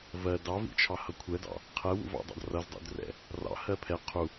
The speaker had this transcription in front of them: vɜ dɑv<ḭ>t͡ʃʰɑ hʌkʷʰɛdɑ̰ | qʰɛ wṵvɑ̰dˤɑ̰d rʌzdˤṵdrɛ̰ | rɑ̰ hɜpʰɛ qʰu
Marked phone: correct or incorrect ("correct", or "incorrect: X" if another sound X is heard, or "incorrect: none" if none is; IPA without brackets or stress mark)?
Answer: correct